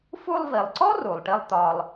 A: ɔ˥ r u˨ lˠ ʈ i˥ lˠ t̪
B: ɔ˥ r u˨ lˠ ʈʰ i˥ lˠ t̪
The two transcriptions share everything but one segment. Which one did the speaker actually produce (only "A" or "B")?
A